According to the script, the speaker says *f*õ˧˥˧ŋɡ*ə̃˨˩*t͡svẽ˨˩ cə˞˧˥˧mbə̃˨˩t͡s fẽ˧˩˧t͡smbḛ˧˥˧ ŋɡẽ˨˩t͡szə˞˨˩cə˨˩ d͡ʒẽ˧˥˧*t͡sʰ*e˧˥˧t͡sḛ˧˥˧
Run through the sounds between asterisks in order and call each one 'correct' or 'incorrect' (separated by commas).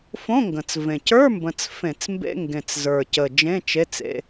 correct, correct, incorrect